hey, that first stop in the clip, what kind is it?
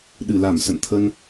implosive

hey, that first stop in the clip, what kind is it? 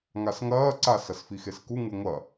click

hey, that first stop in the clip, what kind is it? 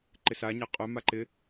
click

